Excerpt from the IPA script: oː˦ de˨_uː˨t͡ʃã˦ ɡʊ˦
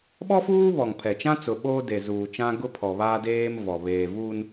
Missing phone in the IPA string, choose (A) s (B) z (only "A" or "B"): B